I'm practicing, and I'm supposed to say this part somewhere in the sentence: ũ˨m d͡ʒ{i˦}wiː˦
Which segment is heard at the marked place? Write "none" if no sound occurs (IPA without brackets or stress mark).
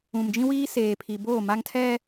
ĩ˦